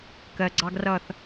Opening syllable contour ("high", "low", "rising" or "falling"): low